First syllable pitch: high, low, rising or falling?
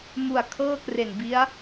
low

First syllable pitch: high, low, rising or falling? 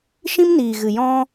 high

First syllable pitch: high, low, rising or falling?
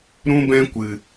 high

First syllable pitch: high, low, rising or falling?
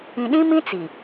low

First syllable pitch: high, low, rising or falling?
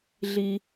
low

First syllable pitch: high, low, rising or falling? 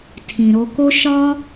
low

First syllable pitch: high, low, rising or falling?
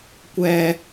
high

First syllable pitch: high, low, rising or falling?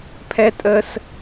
high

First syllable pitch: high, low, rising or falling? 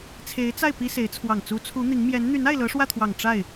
rising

